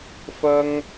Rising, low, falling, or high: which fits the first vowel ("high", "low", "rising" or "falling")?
high